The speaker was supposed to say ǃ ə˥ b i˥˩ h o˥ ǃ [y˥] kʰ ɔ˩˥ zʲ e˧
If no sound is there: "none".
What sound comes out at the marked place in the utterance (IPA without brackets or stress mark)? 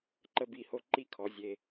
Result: i˥